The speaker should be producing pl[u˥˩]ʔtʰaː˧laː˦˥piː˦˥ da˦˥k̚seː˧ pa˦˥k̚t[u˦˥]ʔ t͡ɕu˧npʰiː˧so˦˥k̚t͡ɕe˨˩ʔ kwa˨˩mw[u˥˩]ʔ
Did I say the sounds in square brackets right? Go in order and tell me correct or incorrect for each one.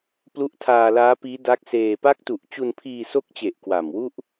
incorrect, incorrect, correct

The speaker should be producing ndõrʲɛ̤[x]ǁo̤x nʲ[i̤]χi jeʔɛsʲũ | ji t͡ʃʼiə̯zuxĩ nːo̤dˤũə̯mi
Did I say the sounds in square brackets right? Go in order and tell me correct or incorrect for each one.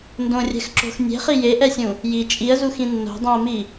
correct, incorrect

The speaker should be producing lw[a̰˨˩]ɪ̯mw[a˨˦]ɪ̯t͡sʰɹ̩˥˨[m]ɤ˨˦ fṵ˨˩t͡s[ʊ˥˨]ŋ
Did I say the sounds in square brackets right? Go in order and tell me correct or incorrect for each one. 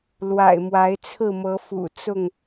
correct, correct, correct, correct

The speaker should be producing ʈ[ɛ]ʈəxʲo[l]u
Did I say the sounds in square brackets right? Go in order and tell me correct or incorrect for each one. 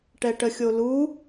correct, correct

